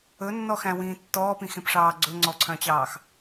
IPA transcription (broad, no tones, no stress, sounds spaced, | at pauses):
ɵ nː ɔ x æ̃ w ĩː tː ɔː p ĩ x ẽ p ʂ ɑː ɡ͡ǀ ɵ ŋ͡ǀ ɔ ǀʰ œ̃ t͡ɕ ɑː x